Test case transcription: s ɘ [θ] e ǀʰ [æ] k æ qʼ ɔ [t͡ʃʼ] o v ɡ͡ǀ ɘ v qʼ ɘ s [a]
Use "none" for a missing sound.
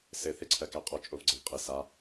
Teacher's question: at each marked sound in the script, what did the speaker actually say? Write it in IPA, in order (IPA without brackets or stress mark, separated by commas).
θ, ɜ, t͡ʃʼ, a